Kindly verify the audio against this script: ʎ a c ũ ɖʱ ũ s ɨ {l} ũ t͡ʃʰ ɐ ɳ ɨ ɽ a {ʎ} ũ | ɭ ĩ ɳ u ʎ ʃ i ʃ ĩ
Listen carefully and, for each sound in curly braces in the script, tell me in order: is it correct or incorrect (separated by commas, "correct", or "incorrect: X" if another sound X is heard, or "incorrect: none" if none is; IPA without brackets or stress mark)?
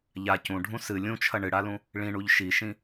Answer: incorrect: lʲ, incorrect: l